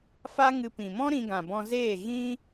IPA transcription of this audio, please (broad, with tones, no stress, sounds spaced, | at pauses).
f a˦ ŋ ɨ˧ p ĩ˨ m ɔ̃˦ ɾ ĩ˧ ɡ ã˨ b ɔ̃˧ z eː˦˨ ɣ ĩ˦